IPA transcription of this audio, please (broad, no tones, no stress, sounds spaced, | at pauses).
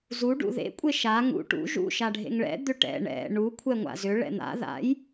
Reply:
z u ɖ ṵ ð ḛ kʷʼ e ʃ a ŋ ṵ ʈ ṵ ʒ ṵ ʃ a ɖʱ ḛ ŋ ɭ ɛ̰ d̪ ʏ ʈ ɛ̰ ɳ ɛ̰ ɳ u kʷʰ ɛ ŋʷ a̰ z ʏ ɭ ɛ̰ n̪ a̰ ð a̰ j